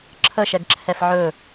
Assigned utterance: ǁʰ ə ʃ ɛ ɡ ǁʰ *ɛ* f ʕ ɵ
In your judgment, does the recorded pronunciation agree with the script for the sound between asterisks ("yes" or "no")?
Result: yes